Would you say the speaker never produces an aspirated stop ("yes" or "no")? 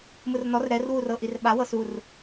yes